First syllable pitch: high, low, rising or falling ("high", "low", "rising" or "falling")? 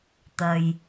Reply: low